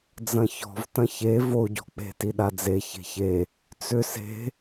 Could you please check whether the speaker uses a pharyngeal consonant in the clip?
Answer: no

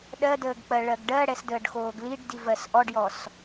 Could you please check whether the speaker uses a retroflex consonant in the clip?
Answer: yes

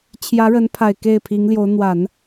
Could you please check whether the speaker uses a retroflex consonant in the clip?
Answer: yes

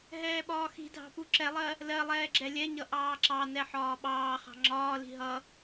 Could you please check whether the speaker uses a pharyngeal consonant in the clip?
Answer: yes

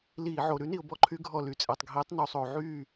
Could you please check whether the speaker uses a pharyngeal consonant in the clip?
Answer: yes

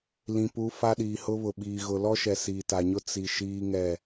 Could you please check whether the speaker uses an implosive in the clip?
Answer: yes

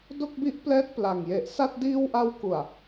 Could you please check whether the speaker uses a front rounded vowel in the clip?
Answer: no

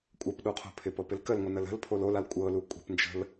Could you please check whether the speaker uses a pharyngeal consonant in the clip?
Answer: no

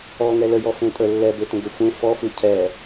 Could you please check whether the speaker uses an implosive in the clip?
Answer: no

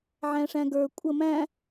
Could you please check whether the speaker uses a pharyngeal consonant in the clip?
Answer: yes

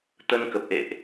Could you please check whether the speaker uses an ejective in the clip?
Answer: no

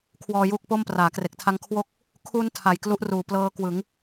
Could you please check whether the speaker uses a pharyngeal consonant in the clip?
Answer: no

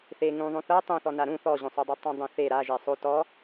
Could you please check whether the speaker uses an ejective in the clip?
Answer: no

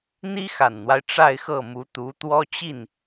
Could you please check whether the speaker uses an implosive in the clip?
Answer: no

